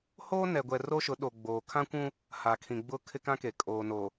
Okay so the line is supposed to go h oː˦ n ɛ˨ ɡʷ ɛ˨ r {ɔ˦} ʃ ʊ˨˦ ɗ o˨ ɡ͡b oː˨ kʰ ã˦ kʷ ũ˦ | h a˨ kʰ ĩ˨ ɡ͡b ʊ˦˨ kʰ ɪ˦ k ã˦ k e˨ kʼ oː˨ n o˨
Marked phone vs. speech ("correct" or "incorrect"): incorrect